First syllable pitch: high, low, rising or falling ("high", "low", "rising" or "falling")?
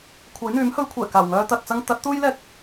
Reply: rising